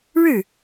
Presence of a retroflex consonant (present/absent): present